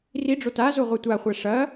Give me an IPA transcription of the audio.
r i ɖ͡ʐ o t a z o ʁʷ ɛ tʷ a χʷ ɛ ʂ ɐ

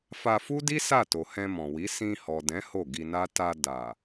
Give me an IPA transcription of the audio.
f a˧ f u˦ d i˦ s a˦˨ t o˨ h ɛ̃˧ m ɔ̃˨ w i˨˦ s ĩ˧ h ɔ˨ d ɛ̃˨˦ h o˦˨ ɡ i˧ n a˦ t a˧ d a˨

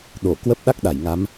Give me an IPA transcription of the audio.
ɗ o˧˩ k w ə˦˥ p̚ ɗ a˦˥ k̚ ɗ a˧˩ j ŋ a˨˦ m

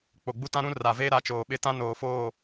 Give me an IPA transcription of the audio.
k͡p o˨ ɡ͡b u˦ t ã˦ ɾ ũ˦ r a˨ v eː˦ ɾ a˨˦ t͡ʃ oː˨ ɓ ɪ˦ t ã˦ n oː˨ f oː˦˨

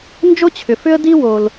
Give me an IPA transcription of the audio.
n d͡ʒ o˥ t͡ɕʰ ʏ˩ f ʏ˥ ə̯ d i˥ w o˩ l

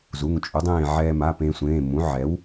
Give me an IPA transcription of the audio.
z u˩˧˩ ŋ t͡ʃʼ u˩˥ dˤ ẽː˥˨ ʕ ɛː˧ m a˩˧˩ p ẽ˧ sʷ ẽː˩˧˩ m ũ˩˥ ʕ ɛ˩˥ w

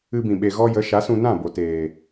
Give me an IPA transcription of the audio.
ɨ˧ b ĩ˨ ɓ e˨ ɣ ɔ˧ j ə˨˦ ʃ a˨˦ s ũ˧ n ã˦˨ b o˨ t eː˨

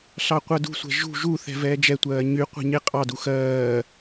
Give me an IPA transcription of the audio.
ɬ ɑ qʷ ɜ d ṳ sʷ ɛ̤ ʒ ṳ ʒ u θ ɛ̤ v ɛː d͡ʒ ɛ tʷ ɜː ɲ y qʷ ɛ̤ ɲ e qʼ ɑ d u x ɜː

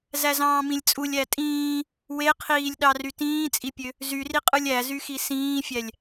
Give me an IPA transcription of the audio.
z æ z ɑ̃ː m ĩ lʲ t͡sʼ u lʲ æ tʼ ĩː | w e qʰ iː lʲ ɗ ɑ r y t ĩː t͡sʼ i pʲ ø | z y r i qʼ ɯ lʲ æ z y x i s ĩː fʲ æ lʲ

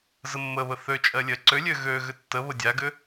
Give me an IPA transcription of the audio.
z ə mː ə β ə θ ø t͡ʃʼ ɜ lʲ ɜ ǀ ø lʲ ø ɣ ø ɣ ʏ tː ə β ə dʲ a ɡ ʏ

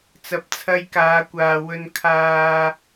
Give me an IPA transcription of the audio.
t͡s ɐ˨˥ p̚ t͡sʰ ɐ˧ j k aː˨˧ kʷ aː˨ w ɵ˨ n kʰ aː˨

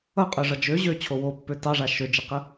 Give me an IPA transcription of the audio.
ʌ qʼ ø ʐ ʌ d͡ʒ ø ʑ ø t͡ɕʰ o w o pː ø t ɑ ʐ a ʃ ø d͡ʒ ə q ə

